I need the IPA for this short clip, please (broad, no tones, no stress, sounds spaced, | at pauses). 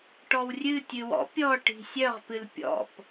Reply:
ʈ ɔ w rʲ ɨ tʲ ɨ w ɔ̰ pʲ ɔ ʈ i̤ sʲ œ ʁ p ɨ l pʲ ɔ̰ p